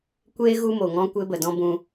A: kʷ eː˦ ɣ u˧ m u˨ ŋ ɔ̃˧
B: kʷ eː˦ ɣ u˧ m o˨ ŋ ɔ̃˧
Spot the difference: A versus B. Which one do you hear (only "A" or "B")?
B